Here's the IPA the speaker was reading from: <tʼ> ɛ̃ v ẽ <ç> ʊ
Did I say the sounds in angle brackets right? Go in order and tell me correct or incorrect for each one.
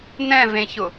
incorrect: n, correct

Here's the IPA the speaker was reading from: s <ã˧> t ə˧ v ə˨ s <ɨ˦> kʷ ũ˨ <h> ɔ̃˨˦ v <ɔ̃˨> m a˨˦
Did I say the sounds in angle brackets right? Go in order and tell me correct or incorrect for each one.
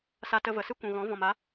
incorrect: a˧, correct, incorrect: ɣ, correct

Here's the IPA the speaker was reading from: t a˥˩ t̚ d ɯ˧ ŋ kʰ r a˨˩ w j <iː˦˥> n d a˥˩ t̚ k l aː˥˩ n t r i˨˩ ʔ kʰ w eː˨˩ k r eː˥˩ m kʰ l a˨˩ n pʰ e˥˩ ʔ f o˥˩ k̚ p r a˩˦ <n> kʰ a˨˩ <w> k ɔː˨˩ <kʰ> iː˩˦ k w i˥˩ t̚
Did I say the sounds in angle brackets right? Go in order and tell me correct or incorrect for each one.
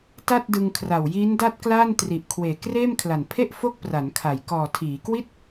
correct, correct, incorrect: j, incorrect: tʰ

